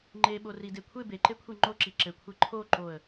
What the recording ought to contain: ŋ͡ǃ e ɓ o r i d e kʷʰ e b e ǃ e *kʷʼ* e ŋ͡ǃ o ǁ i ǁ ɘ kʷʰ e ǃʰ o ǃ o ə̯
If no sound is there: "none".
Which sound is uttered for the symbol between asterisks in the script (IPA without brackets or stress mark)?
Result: kʷʰ